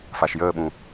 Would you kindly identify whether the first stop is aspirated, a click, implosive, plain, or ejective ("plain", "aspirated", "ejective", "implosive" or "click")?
implosive